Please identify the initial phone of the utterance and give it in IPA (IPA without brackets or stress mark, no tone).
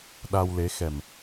ɗ